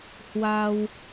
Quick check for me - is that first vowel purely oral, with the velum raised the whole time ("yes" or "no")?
yes